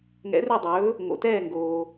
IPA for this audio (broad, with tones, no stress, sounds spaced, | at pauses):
ŋ ɛ̰˧˥ r ø˥˧ dˤ ɵː˧˥ | ŋ o̰˧ t ɛː˥˧ ŋ ɡ oː˧